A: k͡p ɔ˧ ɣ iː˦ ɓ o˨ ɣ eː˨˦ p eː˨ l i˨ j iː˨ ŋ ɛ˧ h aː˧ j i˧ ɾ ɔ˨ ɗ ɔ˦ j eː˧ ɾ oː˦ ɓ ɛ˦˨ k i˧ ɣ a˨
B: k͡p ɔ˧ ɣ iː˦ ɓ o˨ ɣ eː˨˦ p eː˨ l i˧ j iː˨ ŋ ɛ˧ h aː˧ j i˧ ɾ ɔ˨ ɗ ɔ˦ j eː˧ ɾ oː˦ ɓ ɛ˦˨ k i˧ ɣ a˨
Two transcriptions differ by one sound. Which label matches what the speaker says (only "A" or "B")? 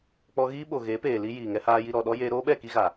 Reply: B